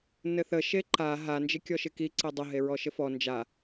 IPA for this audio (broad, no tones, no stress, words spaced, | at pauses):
nɘθə ʃeǃa ɦa nd͡ʒɪkʲɔʃɪki ǀedˤə ɦeɹɔʃɘfɔ nd͡ʒa